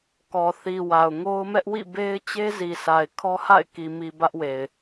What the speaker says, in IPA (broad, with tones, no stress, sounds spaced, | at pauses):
k ɔ˨ θ i˨ w a˨ ʊ̯ ŋ o˦ ʊ̯ m ɛ˦ ʔ w ḭ˦˨ b e˦ ɪ̯ t͡ɕ e˦ z i˨ s a˨ ɪ̯ kʰ ɔ˦ h a̰˦˨ ɪ̯ k i˨ m i˨ b ä˦ ʔ w e˨ ɪ̯